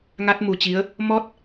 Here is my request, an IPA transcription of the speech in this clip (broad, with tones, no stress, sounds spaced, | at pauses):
ŋ a˦˥ t̚ m u˨˩ t͡ɕ i˨˦ ə̯ | m ɔ˦˥ t̚